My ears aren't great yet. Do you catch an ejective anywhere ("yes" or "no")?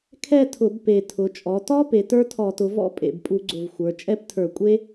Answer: yes